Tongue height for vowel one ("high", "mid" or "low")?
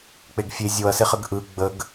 mid